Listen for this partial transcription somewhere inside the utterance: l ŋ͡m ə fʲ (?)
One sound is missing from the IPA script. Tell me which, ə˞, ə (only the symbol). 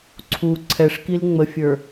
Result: ə˞